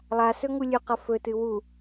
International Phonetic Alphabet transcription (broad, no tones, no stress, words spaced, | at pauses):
lˠasɵ ŋulʲʉqɐ fɵtɨ wu